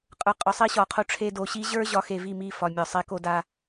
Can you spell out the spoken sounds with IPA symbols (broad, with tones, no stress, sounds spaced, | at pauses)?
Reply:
qʼ ə˞˨ qʼ ɒ˨ sˤ i˦ ɕ ɒ˨ qʰ o˦ ʈ͡ʂʰ e˦ d o˨ ɕ i˦ ʑ ə˞˦ ʑ ɒ˨˦ x e˨ v i˦˨ m i˦˨ f ɒ˨ mʲ ɒ˨ sˤ e˦ k o˦ d a˦